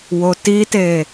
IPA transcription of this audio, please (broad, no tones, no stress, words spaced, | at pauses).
wotite